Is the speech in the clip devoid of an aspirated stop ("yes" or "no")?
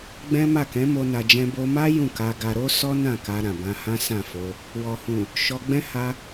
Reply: yes